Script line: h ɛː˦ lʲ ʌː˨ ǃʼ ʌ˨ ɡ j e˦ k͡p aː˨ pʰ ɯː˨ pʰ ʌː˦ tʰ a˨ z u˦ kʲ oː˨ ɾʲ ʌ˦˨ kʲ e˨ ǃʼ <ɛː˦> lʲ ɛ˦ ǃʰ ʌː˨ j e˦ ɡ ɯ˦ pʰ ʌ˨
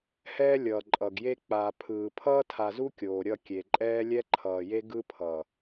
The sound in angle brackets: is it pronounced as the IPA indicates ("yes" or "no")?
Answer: yes